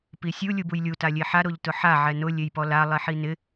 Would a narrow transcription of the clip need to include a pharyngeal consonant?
yes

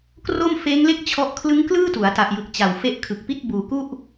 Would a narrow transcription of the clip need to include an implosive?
no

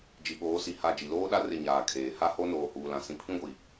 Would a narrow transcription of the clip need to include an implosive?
yes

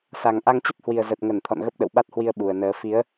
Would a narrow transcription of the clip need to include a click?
no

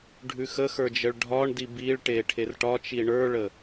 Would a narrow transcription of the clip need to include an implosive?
no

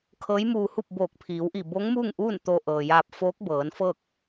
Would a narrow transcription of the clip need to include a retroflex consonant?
no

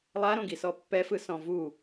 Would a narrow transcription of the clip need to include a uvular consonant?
no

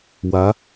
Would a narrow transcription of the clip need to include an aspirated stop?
no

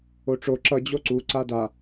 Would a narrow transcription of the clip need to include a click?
yes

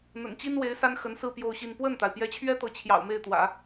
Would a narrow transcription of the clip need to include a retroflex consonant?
no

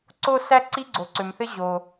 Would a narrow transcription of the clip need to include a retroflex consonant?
no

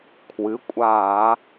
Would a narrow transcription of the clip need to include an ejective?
yes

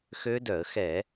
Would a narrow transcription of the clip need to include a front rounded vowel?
yes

